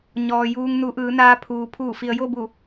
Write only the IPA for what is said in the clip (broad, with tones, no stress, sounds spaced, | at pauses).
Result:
ɲ ɔː˩ j uː˧ ŋ n u˩˧ ʔ ɯː˩˧ n aː˧ pʰ uː˩ pʰ uː˧˩ f i˩ ə̯ j o˥˨ b u˧˩